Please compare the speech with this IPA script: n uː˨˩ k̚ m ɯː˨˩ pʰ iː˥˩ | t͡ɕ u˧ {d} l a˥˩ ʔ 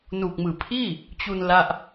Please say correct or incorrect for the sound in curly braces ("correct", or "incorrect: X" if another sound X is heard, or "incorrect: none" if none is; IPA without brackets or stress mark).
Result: incorrect: n